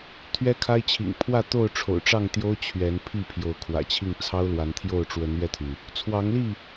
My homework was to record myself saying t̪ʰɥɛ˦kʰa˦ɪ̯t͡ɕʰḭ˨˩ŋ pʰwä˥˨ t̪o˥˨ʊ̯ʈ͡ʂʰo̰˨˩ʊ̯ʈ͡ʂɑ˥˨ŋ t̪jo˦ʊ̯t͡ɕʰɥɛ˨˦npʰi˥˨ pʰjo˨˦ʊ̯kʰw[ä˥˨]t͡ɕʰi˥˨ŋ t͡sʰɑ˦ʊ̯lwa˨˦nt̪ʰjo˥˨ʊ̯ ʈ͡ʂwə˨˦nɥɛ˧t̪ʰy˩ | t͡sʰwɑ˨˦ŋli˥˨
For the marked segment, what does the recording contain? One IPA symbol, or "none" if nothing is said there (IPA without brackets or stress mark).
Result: ä̰˨˩